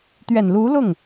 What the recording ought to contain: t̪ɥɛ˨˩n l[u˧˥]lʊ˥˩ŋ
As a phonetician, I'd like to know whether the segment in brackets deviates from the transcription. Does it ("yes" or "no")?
no